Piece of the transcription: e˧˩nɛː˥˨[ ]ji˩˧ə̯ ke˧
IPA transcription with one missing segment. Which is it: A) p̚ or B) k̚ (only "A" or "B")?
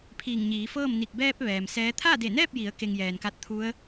A